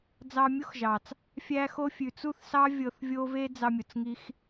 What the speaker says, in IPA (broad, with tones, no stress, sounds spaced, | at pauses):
d͡z ɑ˧ mʲ o˦ x ʒ ɑ˨ t͡s | fʲ æ˧ x o˧ fʲ ʉ˨ t͡s u˦˨ θ s ɑ˦ vʲ ɤ˧ θ vʲ o˦ v e˦ d͡z ɑ˧ mʲ o˨ t͡s ŋ i˧ x